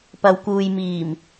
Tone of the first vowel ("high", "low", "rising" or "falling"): low